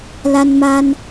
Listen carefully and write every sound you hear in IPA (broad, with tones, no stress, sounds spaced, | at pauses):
l a˧ n m a˧ n